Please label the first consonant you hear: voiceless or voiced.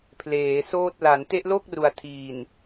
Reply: voiceless